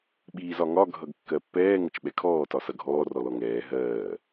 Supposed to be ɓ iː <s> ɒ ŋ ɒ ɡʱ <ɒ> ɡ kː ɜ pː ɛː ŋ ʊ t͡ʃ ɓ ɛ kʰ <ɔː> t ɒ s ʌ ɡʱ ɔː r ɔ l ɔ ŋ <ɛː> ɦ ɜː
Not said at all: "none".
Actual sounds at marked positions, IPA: z, ʌ, ɔː, ɛː

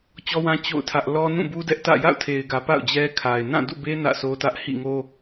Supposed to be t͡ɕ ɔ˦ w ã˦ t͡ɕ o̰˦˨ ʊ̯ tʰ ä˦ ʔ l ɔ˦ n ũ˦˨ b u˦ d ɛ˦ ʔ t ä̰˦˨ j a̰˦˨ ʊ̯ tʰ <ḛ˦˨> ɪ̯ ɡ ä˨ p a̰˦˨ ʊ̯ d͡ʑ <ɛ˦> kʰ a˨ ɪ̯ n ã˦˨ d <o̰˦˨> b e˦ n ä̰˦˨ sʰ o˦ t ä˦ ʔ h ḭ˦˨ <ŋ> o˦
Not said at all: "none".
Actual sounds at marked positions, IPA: e˨, ɛ˦, ṵ˦˨, ŋ

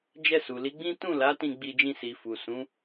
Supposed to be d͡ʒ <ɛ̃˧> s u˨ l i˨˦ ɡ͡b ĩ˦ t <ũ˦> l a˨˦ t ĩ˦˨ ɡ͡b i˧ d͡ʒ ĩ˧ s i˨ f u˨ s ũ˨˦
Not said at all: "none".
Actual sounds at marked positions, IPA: ɛ˧, ũ˦˨

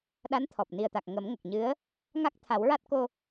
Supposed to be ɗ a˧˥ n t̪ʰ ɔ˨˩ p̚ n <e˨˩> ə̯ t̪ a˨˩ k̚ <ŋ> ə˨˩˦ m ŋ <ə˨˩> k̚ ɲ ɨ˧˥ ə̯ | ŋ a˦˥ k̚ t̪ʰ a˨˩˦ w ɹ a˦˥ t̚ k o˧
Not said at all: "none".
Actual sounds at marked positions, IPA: i˨˩, ŋ, ə˨˩

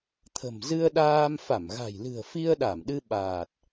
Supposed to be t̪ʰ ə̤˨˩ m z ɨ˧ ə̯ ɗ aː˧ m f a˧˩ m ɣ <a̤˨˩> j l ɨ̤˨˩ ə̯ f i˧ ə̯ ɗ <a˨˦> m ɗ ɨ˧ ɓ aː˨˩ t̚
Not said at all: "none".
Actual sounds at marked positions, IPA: a̤˨˩, a˧˩

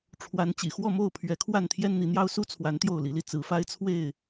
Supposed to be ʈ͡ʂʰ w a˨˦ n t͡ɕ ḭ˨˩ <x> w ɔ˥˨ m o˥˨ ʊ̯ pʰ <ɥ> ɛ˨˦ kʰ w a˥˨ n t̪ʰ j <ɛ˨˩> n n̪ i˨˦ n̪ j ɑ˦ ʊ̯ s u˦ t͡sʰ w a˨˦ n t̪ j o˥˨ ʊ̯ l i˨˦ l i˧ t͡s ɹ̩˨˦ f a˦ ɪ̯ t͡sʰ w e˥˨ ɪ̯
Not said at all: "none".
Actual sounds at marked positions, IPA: x, ɥ, ɛ˦

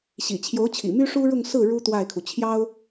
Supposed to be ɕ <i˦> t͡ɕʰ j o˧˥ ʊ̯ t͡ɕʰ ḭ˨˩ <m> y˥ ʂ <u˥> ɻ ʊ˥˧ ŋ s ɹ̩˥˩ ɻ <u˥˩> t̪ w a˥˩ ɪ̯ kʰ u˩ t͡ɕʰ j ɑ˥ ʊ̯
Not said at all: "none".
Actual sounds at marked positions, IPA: ḭ˨˩, m, u˥, u˥

